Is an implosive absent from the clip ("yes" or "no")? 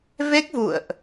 yes